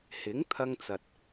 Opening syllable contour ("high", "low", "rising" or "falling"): rising